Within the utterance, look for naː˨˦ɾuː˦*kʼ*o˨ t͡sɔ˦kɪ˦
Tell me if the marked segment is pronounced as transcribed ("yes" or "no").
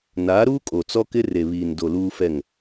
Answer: yes